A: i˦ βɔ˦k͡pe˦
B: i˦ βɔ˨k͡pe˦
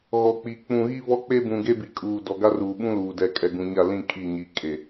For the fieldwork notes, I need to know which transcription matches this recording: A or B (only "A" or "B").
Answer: A